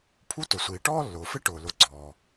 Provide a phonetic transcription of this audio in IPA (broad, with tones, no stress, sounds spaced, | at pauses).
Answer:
pʰ u˦ t ʊ˩ sʷ iː˩ ʈ ɔː˥ lː ʊː˩ f ɪ˥ ʈ ʊː˩ l ʊ˨ ɡ͡ǀ ɔː˩